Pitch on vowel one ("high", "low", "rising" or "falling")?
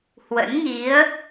rising